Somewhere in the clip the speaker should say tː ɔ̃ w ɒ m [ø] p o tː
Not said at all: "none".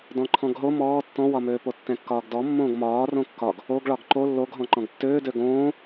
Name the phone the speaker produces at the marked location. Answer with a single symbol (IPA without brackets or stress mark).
øː